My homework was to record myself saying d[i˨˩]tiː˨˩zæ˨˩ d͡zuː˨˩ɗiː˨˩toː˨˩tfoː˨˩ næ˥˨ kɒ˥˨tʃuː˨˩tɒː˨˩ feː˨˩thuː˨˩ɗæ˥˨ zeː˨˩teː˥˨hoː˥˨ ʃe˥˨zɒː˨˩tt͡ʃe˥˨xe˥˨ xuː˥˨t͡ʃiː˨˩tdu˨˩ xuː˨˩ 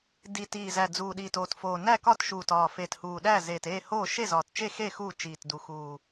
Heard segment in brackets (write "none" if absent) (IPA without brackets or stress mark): i˨˩